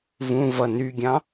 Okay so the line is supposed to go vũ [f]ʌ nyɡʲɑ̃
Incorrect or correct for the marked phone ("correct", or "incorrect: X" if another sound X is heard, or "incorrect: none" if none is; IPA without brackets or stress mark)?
incorrect: v